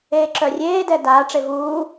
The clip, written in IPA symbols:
eː ǁ œ rʲ eː d ɛ d a ʈ͡ʂ e v uː

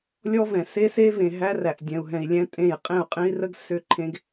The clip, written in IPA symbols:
lʲ ɔ˦ v ɛ̃˨ s e˦ s e˦ v ẽ˨ ɦ æ˦ r æ˨ ʔ dʲ ɛ̃˨ u̯ ɦ ɛ̃˨ i̯ lʲ ɛ̃˦ tʼ ẽ˦˨ j qʼ ẽ˦˨ u̯ qʼ ẽ˦ i̯ r ə˦ ɡ s ʏ˦˨ ǃʰ ẽ˦ ɡ

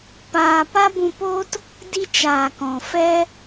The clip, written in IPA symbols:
p aː˧ p a˦ b ũ˧ p oː˦ t | d i˧ t͡ʃ aː˨ k ɔ̃˨ f ɛ˦

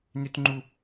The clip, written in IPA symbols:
n ʏ t ŋ͡ǃ u

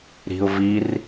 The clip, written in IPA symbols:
ɾ i̤ ʊ̯ v i r

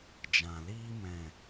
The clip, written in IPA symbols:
d͡ʒ ã˨ l iː˧ m ɛ̃˨

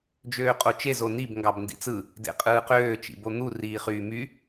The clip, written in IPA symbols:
d͡ʒ øː qʼ o t͡ʃ e z o n i b ŋ ɡ ɑ b n d ḭ t͡s ɯ | d ḛ qʼ ɯː q øː t͡ʃ ḭ b o n̪ u r iː χ yː m y

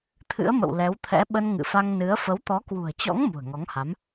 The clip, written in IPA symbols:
t̪ʰ ɨ̰˧˥ ə̯ m ə̰˧˨ w l ɛ˨˦ w t̪ʰ ɛ̰˧˥ ɓ ə˧ n ŋ ɨ̰˧˨ f a˧ ŋ n ɨ˨˦ ə̯ f ə˨˦ w t̪ ɔ˨˦ k w ṳ˨˩ ə̯ t͡ɕ ɔ̰˧˥ ŋ m ṳ˨˩ ə̯ ŋ ɔ˨˦ ŋ h a˨˦ m

